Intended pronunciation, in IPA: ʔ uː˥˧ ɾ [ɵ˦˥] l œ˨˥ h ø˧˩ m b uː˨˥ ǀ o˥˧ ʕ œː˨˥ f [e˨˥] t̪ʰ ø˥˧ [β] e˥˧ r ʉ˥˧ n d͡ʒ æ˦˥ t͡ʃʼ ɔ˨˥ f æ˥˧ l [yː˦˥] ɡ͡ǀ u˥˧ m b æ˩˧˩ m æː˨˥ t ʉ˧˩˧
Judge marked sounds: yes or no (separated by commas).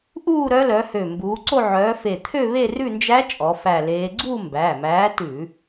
no, no, yes, no